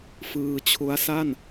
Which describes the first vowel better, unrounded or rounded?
unrounded